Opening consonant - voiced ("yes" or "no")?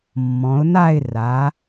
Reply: yes